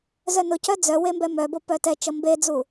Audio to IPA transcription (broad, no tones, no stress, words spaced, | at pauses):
zœnʊcœ d͡zœ wembɛmœbo pœtɛt͡ʃʌ mbed͡zu